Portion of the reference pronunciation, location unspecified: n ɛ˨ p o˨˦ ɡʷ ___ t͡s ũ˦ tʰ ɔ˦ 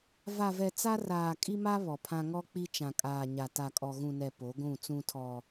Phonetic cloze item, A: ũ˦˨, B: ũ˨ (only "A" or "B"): A